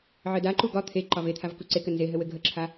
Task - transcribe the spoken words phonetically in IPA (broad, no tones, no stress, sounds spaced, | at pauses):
ʕ ɘ d a ǃ u ɡ ɒ t̪ʰ e ǃ ɒ v e t̪ʰ a v k u ǀ e k ɘ n z e ɦ ɘ w ɘ ɡʱ ə ǁʰ a